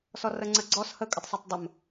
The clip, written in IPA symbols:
s ɔ r ə ŋ͡ǀ ə ɡ͡ǀ ɔ s h ə kʼ ə tˤ s ɜ tˤ dˤ ə m

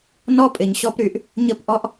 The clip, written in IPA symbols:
n ɔ˦ pʼ ɪ˨ ɲ ɕ ɔ˦ p ɾ y˨ ʔ | ɲ ə˦ p ʔ ɔ˦ ʔ

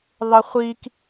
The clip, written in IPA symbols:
ðˤ ə χʷ i k

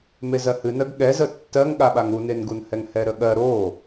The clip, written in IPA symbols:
m e z ɜ h ɨ n ɜ ɡ ɠ ɛ z ə tː ɜ ŋ ɠ a ɓ a ŋ u n e n ɡ u n h ɛ ŋ h ɛ ɾ ə ɠ ɜ ɾ o

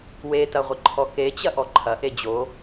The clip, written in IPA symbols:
w e t ɐ ʁʷ ɪ ǃʰ ɔ k e t͡ɕ ɐ ʔ ɔ ǃʰ ɐ ʔ e d͡ʑ o

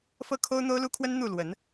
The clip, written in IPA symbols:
f ɤ˥˨ kʰ o˦ ʊ̯ n̪ o˦ ʊ̯ l u˦ kʰ w ə˦ n n̪ u˥˨ l w ə˨˦ n

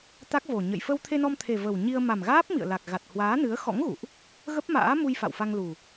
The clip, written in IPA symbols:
t̪ a˦˥ k̚ v o˨˩ ɲ ə̰˧˨ j f ə˧ w t̪ʰ e˧ n ɔ˧ m t̪ʰ e˨˩ v ə˨˩ w ɲ i˧ ə̯ m a˨˩ m ɣ aː˦˥ p̚ m ḭ˧˨ ə̯ l a˨˩ k̚ ɣ a˨˩ t̚ h w aː˨˦ n ɨ˨˦ ə̯ x ɔ̰˧˥ ŋ ɣ ṵ˧˨ ʔ | ɣ ə˦˥ p̚ m a̰ː˧˥ m u˧ j f a̰˧˨ w f a˧ ŋ l u˨˩

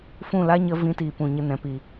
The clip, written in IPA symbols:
f ũ˦˨ l a˦ ɲ ə˦ v ĩ˧ t iː˨ p ũ˨ ɲ ə˧ n ɛ̃˨ p i˨

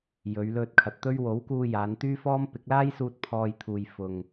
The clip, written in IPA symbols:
j ɵ˨˧ ɥ l ɵ˧ t̚ kʰ ɐ˨ t̚ t̪ ɵ˥ ɥ w o˨˥ w k uː˧ j aː˨˧ n t̪ yː˥ f ɔː˥ m p ɪ˨˥ k̚ l aː˥ j s uː˧ t̚ pʰ ɔː˧ j t̪ʰ uː˨ j f ʊ˨ ŋ

